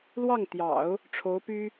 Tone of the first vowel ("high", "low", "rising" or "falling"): falling